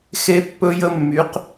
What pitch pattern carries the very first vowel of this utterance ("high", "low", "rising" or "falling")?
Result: high